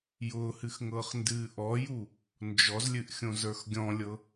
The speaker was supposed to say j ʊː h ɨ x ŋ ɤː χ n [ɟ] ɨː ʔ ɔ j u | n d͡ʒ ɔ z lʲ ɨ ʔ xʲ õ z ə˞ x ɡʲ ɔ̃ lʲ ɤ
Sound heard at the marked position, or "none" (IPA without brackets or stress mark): d